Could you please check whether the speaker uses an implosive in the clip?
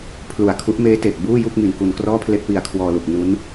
no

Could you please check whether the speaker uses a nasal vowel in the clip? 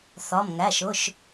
no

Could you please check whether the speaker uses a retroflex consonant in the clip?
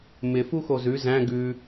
no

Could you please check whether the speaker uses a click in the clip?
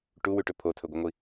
no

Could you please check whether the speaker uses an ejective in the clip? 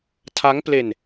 no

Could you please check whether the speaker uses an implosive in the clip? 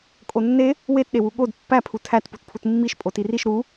yes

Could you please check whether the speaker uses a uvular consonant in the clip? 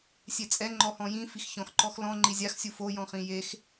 yes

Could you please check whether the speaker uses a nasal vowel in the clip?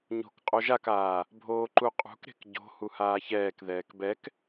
no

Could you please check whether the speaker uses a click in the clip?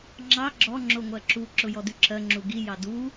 yes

